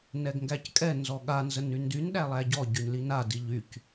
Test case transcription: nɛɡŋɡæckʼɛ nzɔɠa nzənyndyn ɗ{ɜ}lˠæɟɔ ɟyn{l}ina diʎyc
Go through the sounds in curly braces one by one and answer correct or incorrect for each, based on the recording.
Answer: incorrect, correct

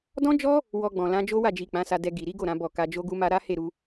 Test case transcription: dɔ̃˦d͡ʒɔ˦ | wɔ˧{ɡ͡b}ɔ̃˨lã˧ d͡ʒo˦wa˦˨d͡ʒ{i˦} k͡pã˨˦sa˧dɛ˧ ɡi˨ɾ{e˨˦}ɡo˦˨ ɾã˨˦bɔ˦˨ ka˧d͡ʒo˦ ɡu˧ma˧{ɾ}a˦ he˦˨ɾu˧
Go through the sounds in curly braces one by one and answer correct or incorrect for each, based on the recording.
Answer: correct, incorrect, incorrect, correct

